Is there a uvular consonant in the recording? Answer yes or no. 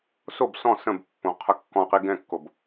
yes